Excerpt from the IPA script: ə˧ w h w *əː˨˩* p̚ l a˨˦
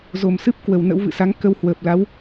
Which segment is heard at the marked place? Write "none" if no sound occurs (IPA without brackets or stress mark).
əː˨˩